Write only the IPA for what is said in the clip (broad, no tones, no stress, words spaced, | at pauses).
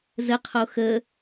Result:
zəqʰo xə